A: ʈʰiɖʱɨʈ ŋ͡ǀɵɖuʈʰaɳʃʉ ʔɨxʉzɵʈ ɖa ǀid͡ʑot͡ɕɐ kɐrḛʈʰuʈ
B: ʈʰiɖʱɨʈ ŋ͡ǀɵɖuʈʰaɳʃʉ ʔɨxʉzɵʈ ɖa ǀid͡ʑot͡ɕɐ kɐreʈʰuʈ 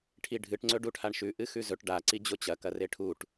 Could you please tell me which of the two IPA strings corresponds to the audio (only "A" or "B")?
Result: B